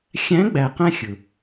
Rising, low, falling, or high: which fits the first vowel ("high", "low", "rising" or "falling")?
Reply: rising